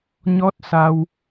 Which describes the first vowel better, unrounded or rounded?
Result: rounded